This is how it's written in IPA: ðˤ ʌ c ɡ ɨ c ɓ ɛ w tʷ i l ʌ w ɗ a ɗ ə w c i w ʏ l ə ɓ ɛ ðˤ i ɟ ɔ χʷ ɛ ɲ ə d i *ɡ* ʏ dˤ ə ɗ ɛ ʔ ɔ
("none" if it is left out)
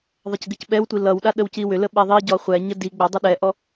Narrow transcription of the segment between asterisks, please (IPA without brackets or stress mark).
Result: ɡ͡b